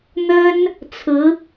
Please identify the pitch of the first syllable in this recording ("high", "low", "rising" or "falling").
high